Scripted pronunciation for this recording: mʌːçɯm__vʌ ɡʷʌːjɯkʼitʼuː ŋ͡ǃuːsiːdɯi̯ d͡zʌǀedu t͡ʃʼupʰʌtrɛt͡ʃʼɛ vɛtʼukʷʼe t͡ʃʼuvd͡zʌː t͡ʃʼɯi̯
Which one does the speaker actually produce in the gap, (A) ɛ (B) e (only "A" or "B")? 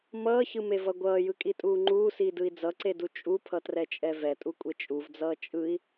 B